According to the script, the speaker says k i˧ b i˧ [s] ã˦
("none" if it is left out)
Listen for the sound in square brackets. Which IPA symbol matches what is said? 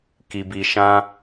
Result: ʃ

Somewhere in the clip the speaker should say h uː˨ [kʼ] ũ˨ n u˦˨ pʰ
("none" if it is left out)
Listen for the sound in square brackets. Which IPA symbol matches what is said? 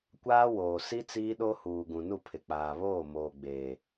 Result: ɡ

